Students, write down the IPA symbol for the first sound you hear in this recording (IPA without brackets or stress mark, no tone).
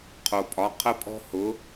qʰ